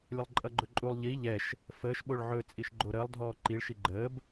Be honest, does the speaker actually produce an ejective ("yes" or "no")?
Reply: yes